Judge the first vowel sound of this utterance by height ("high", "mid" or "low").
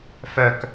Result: mid